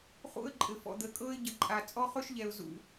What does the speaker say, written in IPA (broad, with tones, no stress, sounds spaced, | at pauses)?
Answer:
χ ṵ˦ ə̯ ǃʼ ɘ˨ f ɔ̰˨ d̪ əː˨ kʼ ɤː˦ ɪ̯ ɟ ə˨ ǃʼ a˨ t͡sʼ ɔ˦ χ ɵ˦ ʃ ʎ ɛ˨ ʊ̯ z ṵ˨